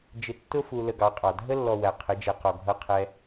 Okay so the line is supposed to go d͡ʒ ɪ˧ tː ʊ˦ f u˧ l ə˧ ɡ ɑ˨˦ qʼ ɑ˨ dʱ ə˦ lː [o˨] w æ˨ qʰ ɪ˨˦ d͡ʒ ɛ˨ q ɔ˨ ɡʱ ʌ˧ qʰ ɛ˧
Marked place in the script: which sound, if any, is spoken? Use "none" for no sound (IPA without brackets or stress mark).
ɔ˨